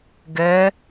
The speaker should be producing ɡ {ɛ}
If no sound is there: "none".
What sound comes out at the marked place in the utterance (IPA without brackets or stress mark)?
ɛ